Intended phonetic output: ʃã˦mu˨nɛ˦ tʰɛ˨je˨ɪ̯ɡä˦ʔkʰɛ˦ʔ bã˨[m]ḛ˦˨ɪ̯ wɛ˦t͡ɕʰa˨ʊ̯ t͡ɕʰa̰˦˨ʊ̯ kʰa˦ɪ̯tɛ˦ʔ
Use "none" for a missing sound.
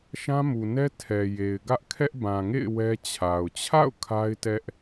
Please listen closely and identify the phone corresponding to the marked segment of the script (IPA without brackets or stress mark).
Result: ŋ